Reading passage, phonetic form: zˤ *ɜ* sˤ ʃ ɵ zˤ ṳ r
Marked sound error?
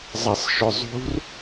yes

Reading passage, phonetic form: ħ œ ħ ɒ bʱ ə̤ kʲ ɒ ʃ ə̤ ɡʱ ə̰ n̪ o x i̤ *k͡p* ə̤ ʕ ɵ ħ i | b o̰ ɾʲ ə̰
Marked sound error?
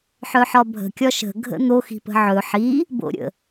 yes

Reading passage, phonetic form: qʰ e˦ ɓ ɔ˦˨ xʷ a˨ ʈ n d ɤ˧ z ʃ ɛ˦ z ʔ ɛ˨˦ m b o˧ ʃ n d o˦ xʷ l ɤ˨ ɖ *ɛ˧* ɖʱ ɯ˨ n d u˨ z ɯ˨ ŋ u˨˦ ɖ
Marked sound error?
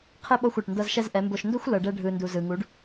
no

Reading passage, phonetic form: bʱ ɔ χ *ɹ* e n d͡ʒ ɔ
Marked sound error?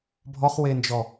yes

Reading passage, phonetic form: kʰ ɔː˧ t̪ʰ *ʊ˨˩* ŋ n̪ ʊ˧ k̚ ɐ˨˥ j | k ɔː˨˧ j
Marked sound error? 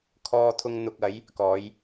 yes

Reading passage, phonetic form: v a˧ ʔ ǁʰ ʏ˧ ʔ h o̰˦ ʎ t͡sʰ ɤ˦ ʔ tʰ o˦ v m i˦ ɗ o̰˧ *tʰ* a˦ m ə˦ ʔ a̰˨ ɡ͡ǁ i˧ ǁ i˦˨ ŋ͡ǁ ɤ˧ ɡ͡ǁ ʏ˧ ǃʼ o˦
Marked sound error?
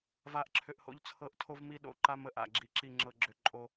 yes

